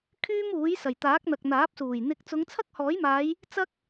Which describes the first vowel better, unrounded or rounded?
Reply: rounded